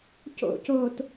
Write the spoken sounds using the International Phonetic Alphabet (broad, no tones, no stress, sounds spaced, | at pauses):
c o̰ c oː t